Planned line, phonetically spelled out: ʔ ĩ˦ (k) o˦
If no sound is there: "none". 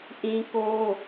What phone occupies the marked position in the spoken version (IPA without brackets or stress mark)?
k